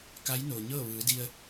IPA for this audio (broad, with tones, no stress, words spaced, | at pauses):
ka˧˥jnoː˩ ɲɤː˥˨ʋɯː˩˧di˧ə̯